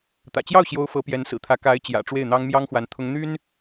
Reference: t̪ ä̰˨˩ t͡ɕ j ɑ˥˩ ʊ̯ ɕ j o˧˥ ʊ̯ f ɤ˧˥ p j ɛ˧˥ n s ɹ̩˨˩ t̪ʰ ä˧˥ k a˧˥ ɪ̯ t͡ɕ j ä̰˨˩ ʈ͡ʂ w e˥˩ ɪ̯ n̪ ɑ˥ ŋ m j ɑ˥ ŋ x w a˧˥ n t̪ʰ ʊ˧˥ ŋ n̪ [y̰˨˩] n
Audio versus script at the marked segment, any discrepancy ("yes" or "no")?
yes